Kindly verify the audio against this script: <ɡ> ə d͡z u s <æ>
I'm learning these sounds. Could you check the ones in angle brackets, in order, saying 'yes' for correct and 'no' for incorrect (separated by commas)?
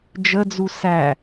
no, yes